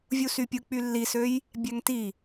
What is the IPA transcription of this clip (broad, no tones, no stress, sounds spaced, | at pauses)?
vʲ u s y pʲ ɯ k͡p y lː i s ø j | bʲ æ ŋ t i